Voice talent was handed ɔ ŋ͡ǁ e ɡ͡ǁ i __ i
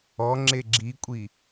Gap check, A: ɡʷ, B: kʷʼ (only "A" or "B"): B